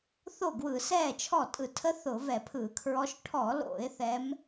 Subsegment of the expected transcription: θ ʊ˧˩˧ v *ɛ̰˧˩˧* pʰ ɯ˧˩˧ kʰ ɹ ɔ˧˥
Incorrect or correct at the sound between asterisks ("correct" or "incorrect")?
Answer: incorrect